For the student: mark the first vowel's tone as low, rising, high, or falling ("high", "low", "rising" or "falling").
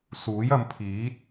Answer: rising